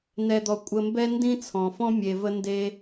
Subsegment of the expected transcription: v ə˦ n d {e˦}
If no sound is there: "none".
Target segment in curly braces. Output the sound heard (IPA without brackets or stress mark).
e˦